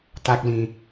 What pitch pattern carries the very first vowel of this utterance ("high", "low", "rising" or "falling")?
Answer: high